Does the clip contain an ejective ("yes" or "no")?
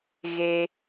no